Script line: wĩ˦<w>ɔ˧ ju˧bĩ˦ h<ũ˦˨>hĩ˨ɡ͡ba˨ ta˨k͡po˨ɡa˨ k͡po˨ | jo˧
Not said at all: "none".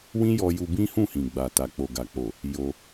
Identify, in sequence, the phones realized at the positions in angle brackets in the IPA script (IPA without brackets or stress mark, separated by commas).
j, ũ˦˨